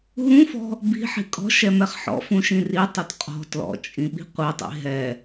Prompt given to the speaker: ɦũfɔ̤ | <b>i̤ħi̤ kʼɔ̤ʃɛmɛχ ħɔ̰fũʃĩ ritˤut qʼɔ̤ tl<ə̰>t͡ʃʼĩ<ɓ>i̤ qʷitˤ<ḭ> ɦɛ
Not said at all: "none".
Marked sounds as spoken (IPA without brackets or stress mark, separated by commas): b, ɔ̰, ɓ, ḭ